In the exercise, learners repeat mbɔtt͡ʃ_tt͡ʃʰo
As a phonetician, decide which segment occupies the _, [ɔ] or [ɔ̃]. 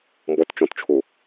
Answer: ɔ̃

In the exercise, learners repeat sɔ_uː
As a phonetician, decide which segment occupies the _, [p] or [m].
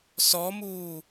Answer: m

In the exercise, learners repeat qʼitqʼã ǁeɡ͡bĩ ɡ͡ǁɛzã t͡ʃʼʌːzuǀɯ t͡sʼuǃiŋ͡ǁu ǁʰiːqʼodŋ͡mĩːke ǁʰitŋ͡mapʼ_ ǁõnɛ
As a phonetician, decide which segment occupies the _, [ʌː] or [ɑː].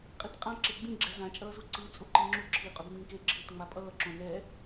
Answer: ʌː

